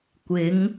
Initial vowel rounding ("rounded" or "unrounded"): unrounded